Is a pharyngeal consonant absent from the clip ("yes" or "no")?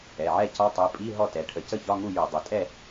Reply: no